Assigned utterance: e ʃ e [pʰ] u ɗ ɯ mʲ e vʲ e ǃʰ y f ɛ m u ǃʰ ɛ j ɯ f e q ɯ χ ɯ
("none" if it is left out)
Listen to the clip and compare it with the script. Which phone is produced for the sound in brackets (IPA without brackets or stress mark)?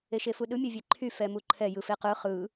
f